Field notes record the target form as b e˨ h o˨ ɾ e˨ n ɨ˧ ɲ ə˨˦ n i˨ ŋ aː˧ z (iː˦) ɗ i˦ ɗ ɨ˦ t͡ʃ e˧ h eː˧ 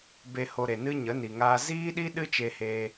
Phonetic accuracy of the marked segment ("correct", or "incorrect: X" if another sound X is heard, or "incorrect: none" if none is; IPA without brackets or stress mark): correct